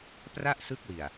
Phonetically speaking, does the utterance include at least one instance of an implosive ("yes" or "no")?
no